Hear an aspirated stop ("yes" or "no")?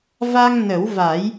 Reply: no